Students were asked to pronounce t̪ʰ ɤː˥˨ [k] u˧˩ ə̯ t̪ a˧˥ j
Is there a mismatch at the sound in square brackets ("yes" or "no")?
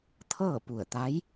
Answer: yes